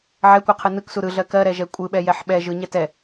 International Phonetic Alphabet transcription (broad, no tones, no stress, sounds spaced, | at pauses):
ʕ ɛ kʷ ɯ qʰ ɯ n ɯ k s u ɾ ɯ ɮ ɜ k ɜ ɾ ɛ ʒ ɛ kʷʼ ɯ ɓ ɛ j ɛ ħ ɓ ɛ ʒ ɯ ɲ ɛ t ɛ